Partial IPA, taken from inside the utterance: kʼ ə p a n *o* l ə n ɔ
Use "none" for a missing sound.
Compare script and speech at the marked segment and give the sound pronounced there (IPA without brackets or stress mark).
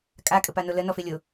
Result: o